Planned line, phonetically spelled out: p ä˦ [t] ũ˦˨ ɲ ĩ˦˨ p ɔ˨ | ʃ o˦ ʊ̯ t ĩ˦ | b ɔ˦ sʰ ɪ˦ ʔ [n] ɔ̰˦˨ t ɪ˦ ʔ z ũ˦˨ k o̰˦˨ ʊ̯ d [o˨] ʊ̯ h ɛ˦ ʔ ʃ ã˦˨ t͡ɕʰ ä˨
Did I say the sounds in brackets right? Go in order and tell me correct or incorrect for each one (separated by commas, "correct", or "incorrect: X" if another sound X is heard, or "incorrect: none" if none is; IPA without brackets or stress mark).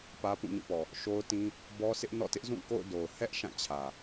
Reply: incorrect: p, correct, correct